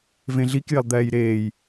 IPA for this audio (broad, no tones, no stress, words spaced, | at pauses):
vẽɮik jɪlˠd̪ɛːjɾeːj